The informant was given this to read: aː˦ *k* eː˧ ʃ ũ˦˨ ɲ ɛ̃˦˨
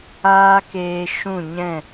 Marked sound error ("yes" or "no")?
no